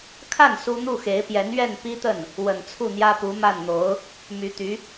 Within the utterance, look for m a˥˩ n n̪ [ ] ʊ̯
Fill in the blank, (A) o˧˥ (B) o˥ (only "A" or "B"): A